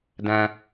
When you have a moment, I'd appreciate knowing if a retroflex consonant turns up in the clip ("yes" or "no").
no